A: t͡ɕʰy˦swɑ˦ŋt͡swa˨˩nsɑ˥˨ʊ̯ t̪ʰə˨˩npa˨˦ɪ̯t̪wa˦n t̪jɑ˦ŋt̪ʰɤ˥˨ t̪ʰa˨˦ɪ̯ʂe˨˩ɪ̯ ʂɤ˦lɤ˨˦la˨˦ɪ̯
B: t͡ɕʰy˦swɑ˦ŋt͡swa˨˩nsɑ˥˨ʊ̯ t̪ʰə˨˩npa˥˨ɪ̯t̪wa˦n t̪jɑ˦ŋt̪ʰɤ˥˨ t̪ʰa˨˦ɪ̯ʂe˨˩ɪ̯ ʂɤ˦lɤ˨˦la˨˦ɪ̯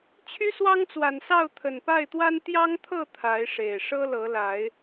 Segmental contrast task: B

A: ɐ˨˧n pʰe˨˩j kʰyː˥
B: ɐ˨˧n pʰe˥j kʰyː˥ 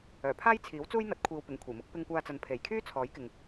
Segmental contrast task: A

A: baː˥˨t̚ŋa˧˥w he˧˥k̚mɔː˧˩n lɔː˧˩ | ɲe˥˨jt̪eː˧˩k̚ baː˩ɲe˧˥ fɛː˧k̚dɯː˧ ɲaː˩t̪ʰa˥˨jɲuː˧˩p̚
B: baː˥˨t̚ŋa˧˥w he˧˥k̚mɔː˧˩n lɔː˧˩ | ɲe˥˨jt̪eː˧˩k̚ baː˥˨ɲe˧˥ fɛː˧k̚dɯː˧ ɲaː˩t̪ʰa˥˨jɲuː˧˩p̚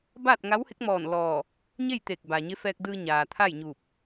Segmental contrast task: A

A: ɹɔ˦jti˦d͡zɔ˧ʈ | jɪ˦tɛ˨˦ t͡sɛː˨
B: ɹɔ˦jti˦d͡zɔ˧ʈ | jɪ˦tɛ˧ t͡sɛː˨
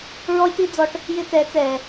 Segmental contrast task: A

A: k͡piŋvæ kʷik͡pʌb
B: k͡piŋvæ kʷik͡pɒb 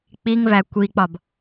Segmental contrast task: B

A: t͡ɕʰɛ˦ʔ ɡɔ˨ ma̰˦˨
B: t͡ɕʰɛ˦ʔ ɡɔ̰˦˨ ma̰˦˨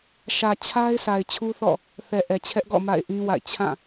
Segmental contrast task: B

